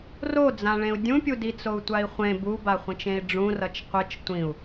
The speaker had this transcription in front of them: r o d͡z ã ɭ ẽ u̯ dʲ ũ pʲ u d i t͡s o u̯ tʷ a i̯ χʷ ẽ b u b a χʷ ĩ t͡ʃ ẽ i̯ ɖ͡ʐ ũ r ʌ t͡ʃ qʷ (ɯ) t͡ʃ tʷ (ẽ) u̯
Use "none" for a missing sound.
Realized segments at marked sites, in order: ɯ, ĩ

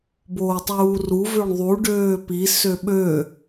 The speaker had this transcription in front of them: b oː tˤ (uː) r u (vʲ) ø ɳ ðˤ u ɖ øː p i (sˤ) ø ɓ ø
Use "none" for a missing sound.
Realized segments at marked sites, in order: uː, v, s

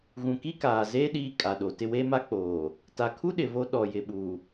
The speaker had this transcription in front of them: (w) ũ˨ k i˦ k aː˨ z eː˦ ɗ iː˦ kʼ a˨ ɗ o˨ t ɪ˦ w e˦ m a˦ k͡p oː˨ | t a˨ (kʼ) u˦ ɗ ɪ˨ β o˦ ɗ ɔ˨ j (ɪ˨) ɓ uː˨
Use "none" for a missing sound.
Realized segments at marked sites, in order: ɣ, kʰ, ɪ˨

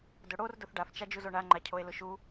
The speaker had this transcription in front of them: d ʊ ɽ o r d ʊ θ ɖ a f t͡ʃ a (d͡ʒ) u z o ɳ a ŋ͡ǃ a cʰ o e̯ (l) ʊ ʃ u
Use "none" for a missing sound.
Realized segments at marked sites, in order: d͡ʒ, l

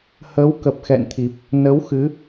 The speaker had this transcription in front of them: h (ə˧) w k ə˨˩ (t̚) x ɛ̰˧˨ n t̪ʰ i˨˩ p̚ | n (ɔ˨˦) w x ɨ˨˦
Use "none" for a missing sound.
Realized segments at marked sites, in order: ə˨˦, p̚, ə˨˦

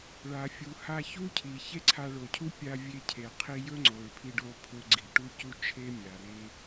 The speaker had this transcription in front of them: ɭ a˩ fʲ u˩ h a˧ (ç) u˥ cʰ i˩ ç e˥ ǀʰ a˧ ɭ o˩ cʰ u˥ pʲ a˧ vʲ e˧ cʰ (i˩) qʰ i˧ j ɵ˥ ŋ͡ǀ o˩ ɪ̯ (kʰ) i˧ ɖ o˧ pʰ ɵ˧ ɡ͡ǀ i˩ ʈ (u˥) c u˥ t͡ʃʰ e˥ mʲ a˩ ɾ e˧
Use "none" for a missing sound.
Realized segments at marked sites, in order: ç, e˩, pʰ, u˥

